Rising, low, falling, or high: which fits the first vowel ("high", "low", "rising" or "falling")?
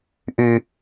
low